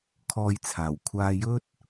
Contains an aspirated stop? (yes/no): yes